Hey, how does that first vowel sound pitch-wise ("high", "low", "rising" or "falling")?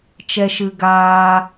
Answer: high